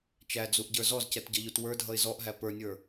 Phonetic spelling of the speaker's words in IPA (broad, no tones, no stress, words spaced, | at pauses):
t͡ʃæd͡zuʔɟə˞ zɔzcɛtɟʌʎut wə˞dʱʌɪ̯ zɔʔɦæ pə˞nʲə˞